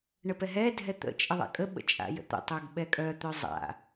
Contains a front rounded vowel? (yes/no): yes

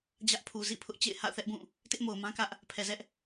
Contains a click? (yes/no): no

